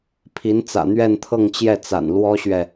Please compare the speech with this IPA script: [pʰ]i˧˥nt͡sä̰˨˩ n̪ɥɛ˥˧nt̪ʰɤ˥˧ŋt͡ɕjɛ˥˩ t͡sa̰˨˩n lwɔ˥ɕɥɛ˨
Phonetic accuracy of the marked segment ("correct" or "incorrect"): correct